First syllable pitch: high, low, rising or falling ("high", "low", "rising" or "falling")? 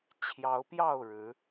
rising